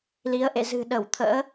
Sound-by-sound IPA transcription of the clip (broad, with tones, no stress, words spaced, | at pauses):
li˨˦ə̯ʔḛ˧˨ zɨ̤˨˩ ɗə˧˩wt̪ʰə̰ː˧˥